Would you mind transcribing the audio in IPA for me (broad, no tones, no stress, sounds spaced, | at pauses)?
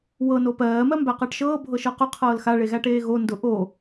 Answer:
w ɤ n o p ɜː m ɜ m b æ q ɜ ʈ ʃ ɤː bʱ ɤ ʃ ɤ q ʊ qʰ ɤː l x a ɭ e ɣ æ ʈ eː ɣ o n d ʊ ʔ o